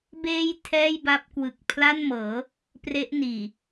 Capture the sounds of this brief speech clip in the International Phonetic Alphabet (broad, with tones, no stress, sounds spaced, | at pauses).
b eː˧ j tʰ ɛː˥˩ j b a˦˥ p̚ k w ɯ˨˩ k̚ pʰ l a˥˩ n m ɤː˩˦ | p r e˦˥ ʔ n iː˨˩